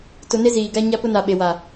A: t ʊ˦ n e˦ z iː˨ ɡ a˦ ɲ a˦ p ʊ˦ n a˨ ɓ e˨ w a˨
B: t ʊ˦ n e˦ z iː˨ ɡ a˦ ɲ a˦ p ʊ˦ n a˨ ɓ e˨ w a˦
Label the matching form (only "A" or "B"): A